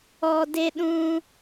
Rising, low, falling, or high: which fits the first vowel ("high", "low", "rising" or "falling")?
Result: low